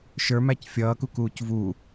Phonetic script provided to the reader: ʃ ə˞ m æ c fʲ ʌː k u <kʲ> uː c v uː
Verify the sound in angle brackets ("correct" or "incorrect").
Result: incorrect